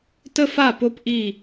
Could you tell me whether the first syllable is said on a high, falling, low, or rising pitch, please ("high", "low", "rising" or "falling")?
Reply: high